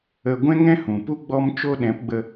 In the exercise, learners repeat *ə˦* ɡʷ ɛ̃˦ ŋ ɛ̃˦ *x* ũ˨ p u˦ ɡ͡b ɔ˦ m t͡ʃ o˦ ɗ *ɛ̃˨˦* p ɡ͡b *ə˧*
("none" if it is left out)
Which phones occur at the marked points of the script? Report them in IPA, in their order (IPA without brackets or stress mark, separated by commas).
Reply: ə˧, h, ɛ̃˨˦, ə˧